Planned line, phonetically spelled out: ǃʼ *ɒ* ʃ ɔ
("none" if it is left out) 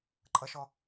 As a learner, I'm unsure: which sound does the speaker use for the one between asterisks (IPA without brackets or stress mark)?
ʌ